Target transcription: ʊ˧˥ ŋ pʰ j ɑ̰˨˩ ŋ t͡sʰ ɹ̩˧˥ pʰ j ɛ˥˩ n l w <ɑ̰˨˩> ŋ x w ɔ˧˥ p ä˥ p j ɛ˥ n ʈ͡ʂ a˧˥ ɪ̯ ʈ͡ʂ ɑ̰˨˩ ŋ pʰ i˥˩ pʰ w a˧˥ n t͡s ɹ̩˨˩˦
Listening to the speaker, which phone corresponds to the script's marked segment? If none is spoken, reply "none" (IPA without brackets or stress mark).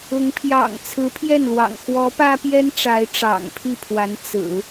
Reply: ɑ̰˨˩